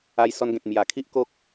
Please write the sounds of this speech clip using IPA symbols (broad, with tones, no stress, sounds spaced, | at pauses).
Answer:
a˧ j s ɔ˧ n ɡ ẽ˨ t̚ m j a˨˩ kʰ i˦ ʔ k o˦ k̚